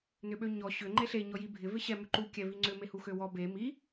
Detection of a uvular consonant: absent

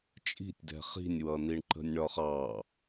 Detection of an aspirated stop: absent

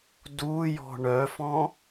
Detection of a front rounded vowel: present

